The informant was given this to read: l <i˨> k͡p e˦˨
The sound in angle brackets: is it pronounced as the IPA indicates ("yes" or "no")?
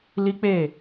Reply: no